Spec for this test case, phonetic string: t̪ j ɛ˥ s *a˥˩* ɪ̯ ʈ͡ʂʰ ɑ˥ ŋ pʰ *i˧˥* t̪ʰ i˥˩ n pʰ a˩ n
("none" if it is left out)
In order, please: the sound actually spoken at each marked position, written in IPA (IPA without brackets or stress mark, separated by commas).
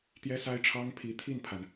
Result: a˥, i˧˥